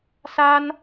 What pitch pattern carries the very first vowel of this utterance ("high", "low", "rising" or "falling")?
high